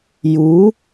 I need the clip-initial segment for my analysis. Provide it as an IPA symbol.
j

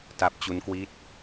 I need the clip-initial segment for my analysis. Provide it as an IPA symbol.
t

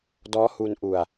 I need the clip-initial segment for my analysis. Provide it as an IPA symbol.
d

